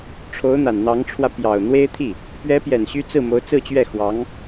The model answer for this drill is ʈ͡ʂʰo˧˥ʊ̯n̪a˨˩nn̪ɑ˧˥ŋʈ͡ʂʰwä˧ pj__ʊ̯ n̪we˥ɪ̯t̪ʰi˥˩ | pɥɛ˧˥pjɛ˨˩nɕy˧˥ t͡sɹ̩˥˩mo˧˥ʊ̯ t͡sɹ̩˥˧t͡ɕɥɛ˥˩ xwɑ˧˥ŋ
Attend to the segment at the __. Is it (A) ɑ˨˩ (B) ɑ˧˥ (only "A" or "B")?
A